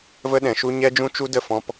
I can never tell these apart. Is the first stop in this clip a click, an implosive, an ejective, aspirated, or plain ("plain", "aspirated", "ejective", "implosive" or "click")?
implosive